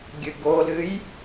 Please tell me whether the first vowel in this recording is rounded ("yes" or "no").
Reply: no